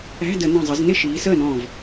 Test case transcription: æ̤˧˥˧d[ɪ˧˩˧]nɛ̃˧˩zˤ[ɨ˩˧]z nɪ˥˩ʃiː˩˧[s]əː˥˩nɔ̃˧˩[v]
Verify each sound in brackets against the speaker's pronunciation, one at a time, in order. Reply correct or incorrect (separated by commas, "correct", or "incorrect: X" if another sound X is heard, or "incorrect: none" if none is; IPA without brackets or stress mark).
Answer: incorrect: ə˧˩˧, incorrect: ɪ˩˧, correct, correct